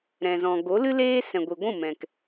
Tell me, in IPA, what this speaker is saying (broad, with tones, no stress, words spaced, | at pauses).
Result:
ɾɛ̃˨ zɔ̃˨ɡo˨˦lɨ˦leː˦ sɛ̃˨ɡʷi˨ɡʷũ˦˨mɛ̃˨k